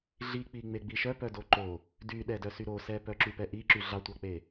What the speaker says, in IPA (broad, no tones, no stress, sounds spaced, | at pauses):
ɮ i k͡p i ŋ͡m e ɡ͡b i ʃ œ p œ d o ǃ o | d y ɗ ɛ d œ s y ɾ o s ɛ p œ ǁ y p ɛ ʔ i ǁ y ɮ ɑ tʷ ɑ k͡p e